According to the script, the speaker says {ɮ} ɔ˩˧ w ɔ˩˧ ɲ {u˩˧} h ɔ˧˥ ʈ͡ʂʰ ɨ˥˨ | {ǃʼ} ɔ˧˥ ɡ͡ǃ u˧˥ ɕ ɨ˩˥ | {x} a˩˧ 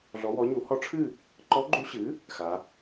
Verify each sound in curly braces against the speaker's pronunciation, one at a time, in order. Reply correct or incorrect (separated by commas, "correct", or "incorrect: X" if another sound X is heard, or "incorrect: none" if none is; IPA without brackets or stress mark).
correct, correct, incorrect: ǃ, correct